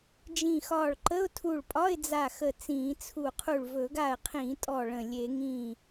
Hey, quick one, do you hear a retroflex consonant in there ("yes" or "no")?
yes